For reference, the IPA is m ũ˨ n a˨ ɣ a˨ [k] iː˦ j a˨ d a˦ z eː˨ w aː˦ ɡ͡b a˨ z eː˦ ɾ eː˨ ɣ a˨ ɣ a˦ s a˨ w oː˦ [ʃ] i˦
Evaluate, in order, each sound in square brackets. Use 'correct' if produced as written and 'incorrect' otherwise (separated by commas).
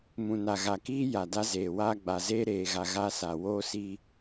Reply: correct, incorrect